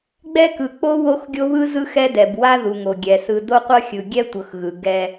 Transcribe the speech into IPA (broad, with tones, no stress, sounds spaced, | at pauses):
ɡ͡b ɛ˦ k ɯ˨ k͡p o˦ w o˦ x ɡʲ o˦ β ɯ˦ z ɯ˦ x ɛ˦ d ɛ˨ b w a˦ ð u˨ ŋ o˨ ɡʲ ɛ˨ s ɯ˨ d o˦ qʷ ɤ˦ xʲ ɯ˨ ɡʲ ɛ˦ tʷ ɤ˨ x ɣ ɯ˨ ɡ ɛ˦